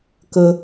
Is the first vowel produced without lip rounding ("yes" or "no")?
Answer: yes